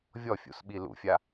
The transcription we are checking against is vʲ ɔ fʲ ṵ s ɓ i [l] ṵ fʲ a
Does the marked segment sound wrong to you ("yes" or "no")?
no